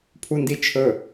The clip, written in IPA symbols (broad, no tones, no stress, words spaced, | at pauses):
pʰundit͡ʃʰɵ